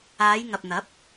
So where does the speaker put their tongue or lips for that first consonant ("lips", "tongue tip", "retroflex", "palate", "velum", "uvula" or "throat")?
palate